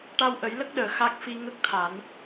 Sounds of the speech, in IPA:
ʈa˧wʔə˨˩˦j lə˦˥k̚ɗəː˨˩˨ xa˦˥k̚ fi˧ŋə˦˥k̚t̪ʰa˨˩˦n

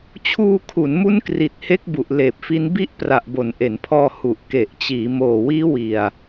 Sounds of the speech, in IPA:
t͡ɕʰuː˧kʰu˩˦nmu˦˥n kri˨˩t̚he˦˥k̚ bu˨˩ʔleː˨˩p̚fi˦˥n bi˦˥ʔpra˨˩ʔbo˩˦n ʔe˩˦npʰɔː˧ hu˨˩ʔke˨˩ʔ t͡ɕiː˩˦moː˨˩wiː˦˥wi˨˩a̯

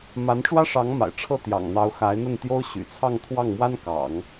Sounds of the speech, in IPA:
ma˧˥nʈ͡ʂwä˥ʂɑ˧˥ŋma̰˨˩ɪ̯ ʈ͡ʂʰɤ˥˩t̪jɑ̰˨˩ŋn̪ɑ˧˥ʊ̯ xa˧˥ɪ̯n̪ə˥˩nt̪jo˥ʊ̯ ɕy̰˨˩t͡sʰɑ˥˧ŋt̪ʰwɑ˥˩ŋmwa˥n kɑ̰˨˩˦ŋ

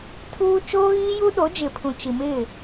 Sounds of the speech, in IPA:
tʰuː˦ t͡ʃoː˦ɣiː˦ju˦ɗo˨˦ d͡ʒɪ˨pʰũ˨t͡ʃi˨ mɪ˦˨

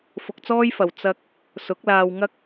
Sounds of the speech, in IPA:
fʊ˧k̚t͡sɔː˥jfɐ˨w t͡sɐ˧k̚ | sʊ˨˥k̚laː˧wŋɐ˥k̚

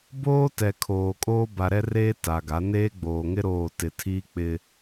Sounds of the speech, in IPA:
boː˦tɛ˨ kʰoː˨kʼoː˦ ba˨ɾɛ˦reː˦ ta˨ɡa˨˦ neː˦ɡ͡boː˨ŋɪ˦ ɾoː˦˨ tɪ˨ tʰiː˦k͡pɪ˦

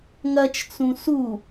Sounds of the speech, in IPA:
ŋɐt͡ʃt͡sũ su

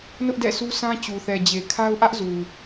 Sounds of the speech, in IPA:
nʊ˦ʔdɛ̰˦˨sʰu˦sʰã˦ t͡ɕu˨θɛ˨d͡ʑe˨ kʰa˦ʊ̯ʔä˦ʔzu˨

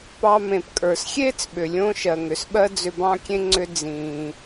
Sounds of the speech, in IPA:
pɑ˧ mẽ˩pkʼə˞˩sxʲeː˥t͡sɓʏ˩ lʲõ˧ʃɜ˩ŋʏ˩sɓɜ˧ d͡zʏ˧bɑ̃˥kʲẽ˥ ŋ͡ǀʏ˧ d͡zĩː˩

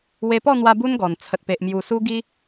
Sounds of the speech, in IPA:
we˧pɔ˥˧n̪wa˧ bu˦nɡɔ˨˩n t͡sʰə˨t̚pe˨ʔ mju˨˩su˧ ɡi˧

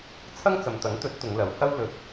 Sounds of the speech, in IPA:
t͡sʰɐ˥ŋt͡sɐ˨mt̪ɐ˨˥ŋt̪ɵ˨˥t̚ t̪ʊ˨˧ŋlɐ˨˧whɐ˥w lɵ˨˥t̚

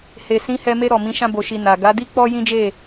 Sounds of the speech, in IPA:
he˨ sĩ˨˦hɛ˧me˧ ɾɔ˨mĩ˨˦ ʃã˧bo˨ʃi˨ na˨ ɡa˨˦di˦ k͡pɔ˦ jĩ˦d͡ʒe˦˨

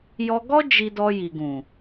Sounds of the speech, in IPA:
jɔ˧ɡɔ˦ d͡ʒi˧ dɔ˧ji˨ɡũ˨

